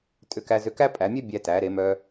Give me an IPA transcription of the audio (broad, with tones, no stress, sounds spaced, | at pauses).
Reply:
tʼ ʏ˧ k æ˧ z ʏ˧ k æ˥ pʼ æ˩˧ mʲ ɛ˥ bʲ æ˧ t æ˩˧ ɾ e˩˧ m œ˧